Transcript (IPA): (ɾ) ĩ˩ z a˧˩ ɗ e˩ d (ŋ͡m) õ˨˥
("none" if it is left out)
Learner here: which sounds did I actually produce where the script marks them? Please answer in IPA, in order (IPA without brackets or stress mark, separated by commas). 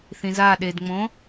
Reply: θ, ŋ͡m